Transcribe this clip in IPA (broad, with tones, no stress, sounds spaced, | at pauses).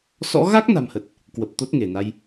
s ɔ̰˧˥ ɣ a˦˥ k̚ n a̤˨˩ m h ə˨˩ t̚ | k w ə˨˩ p̚ t̪ o˦˥ t̚ ŋ e˧˩ n a˧ j